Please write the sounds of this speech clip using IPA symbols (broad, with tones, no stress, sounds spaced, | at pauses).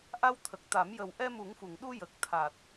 ʔ a˧ w t̪ʰ ə˨˩ k̚ t̪ a˨˩˦ m j ə˨˩ w ʔ ɛ˧ m u˨˩˦ ŋ f u˨˩˨ ŋ ɗ u˧ j ə˨˩ k̚ t̪ʰ a˨˩ t̚